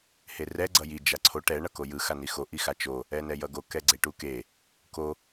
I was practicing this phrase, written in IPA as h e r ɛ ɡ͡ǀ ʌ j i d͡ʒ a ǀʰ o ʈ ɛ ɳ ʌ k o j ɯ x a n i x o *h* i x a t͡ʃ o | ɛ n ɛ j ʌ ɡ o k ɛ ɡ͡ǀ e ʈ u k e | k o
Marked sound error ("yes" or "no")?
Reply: yes